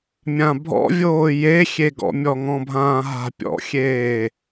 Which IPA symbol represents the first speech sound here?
mʲ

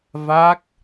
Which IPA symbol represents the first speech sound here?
v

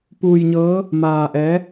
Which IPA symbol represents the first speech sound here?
p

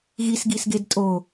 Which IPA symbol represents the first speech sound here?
ɣ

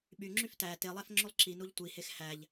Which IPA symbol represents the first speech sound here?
ɓ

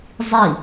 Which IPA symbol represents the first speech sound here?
zˤ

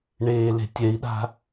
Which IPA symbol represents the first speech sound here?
ɳ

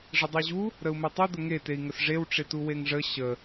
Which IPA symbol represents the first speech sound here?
ʐ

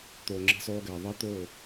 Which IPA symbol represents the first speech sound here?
t̪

